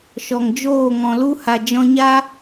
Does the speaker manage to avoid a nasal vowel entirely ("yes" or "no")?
no